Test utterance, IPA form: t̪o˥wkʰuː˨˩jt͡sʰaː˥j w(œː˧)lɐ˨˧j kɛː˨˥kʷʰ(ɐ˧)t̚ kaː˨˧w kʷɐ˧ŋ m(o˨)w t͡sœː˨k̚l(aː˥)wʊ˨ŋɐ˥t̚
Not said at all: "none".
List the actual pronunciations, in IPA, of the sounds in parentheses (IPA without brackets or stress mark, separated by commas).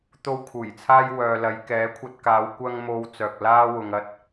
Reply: œː˨, ɐ˧, o˨, aː˥